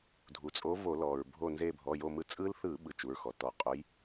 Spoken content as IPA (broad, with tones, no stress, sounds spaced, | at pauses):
dʱ u˩ t͡sʼ o˨˥ v o˧˩˧ l ɔ˩ ɹ bʱ o˧˩ n z e˧˩ bʱ ɔ˩˧˩ j o˧˩ m ɯ˧˩˧ t͡sʼ ɯ˦˥ l θ ɯ˧˩˧ ɓ ɯ˨˥ t͡ʃ u˩˧˩ ɹ x ɔ˩ t ɔ˧˩˧ qʼ o˨˥ j